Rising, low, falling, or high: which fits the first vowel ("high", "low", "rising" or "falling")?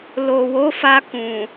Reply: low